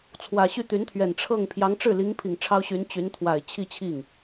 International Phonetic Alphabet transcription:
t͡sʰ w ä˨˩ ɕ y˥˩ t̪ y˧˥ n t̪ʰ ɥ ɛ˨˩ n ʈ͡ʂʰ ɤ˥˩ ŋ pʰ j ɑ˧˥ ŋ ʈ͡ʂ ɻ̩˥˩ l i˧˥ ŋ pʰ i˨˩ ŋ ʈ͡ʂʰ ɑ˥ ʊ̯ ɕ y˧˥ n t͡ɕ y˧˥ n t̪ʰ w a˨˩ ɪ̯ t͡ɕʰ i˥˧ t͡ɕʰ i˥˩ ŋ

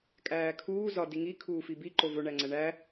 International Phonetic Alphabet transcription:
kʼ æː kʰ uː z ɒ d i ŋ i kʰ uː f i b i ǃ o v o ɳ æ ŋ͡ǀ æ ɳ æ

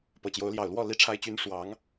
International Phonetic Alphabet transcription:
p ɤ˨˩ t͡ɕ j o˨˦ ʊ̯ l j ɑ˨˩ ʊ̯ l w ɔ˥˨ l i˦ ʈ͡ʂʰ a˦ ɪ̯ t͡ɕ y˦ n ʂ w ɑ˨˦ ŋ

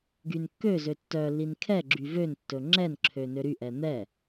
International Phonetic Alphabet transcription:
ɡ y n kː ø z ø tː œ lː i n kʰ ɛ ɡ͡ǁ y v ø n tː ɵ ŋ͡ǁ ɛ n ǁʰ ø n ø ɾ y ʔ ɛ n̪ ɛ

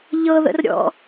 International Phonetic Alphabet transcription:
ʎ ɤ ð ə̰ r ɾʲ ɔ̰

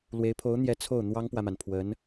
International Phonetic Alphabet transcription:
l w e˧˥ ɪ̯ pʰ o˧˥ ʊ̯ n̪ j ɛ˧˥ t͡sʰ o˥˩ ʊ̯ n̪ w ɑ˥ ŋ p w ä˨ m a˩ n pʰ w ə˧˥ n

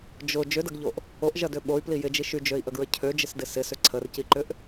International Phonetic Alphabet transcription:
d͡ʒ ʊ d͡ʒ ʏ d ɐ ɡ ʎ o ʔ | o ʔ ʒ ɐ d ø ɓ o y̯ p l i j ɪ d͡ʒ i ʃ y d͡ʒ ø i̯ ʔ ə ɡ ɹ ə cʰ ø d͡ʒ ɪ s d ɪ s ɪ s ʏ ǀʰ ə r c i ǃ ʏ ʔ

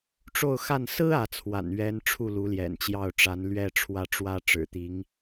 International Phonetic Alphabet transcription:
ʈ͡ʂ o˥˧ ʊ̯ x a˥˩ n s ɹ̩˥ ä˧˥ t͡sʰ w a̰˨˩ n ɥ ɛ˧˥ n ʈ͡ʂʰ u˥˩ l u˧˥ l j ɛ̰˨˩ n t͡ɕ j ɑ˥˩ ʊ̯ ʈ͡ʂ a˧˥ n l ɥ ɛ˥˧ ʈ͡ʂʰ w ä˥˩ ʈ͡ʂ w ä˥ ʈ͡ʂ ɻ̩˨˩ t̪ i˧˥ ŋ

